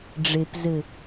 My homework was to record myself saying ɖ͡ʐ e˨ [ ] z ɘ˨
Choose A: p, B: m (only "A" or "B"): A